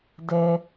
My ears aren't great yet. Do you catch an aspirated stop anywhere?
no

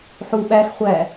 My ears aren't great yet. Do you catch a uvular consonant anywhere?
yes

